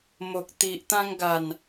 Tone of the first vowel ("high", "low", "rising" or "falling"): low